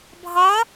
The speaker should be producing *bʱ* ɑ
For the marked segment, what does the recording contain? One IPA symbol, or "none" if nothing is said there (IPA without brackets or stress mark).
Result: bʱ